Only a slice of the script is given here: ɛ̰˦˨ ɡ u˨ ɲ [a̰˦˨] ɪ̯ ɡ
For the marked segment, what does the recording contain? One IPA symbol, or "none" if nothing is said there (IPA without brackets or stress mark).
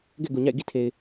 a̰˦˨